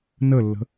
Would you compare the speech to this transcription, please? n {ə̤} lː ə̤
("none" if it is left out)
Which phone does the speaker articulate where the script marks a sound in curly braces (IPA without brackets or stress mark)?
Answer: ə